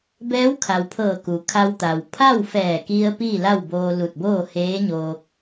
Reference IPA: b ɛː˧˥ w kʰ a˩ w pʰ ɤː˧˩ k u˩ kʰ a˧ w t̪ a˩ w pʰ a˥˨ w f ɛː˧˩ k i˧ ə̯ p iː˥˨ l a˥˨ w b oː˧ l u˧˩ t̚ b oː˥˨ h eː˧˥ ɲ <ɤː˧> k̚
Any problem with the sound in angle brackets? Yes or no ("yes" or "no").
yes